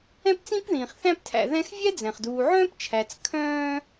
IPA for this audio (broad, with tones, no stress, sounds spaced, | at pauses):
ɛ̃˦ p t͡s ĩ˦ p ð ĩː˩ χ θ æ̃˦ p tʰ æ̰˨ ð ɛ̃˦ x vʲ ɛ˥ d͡z ɛ̃˩ χ d uː˨ ʕ œ̃ː˥ p t͡ʃʰ æ˨ t͡s kʰ œ̃ː˦